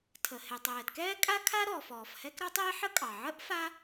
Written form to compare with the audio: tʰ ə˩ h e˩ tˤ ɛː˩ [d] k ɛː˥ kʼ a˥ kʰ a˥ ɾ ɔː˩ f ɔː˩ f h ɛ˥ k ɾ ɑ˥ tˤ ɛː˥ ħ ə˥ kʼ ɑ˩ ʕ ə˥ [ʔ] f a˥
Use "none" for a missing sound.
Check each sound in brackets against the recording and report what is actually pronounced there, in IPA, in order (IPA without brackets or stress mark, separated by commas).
d, ʔ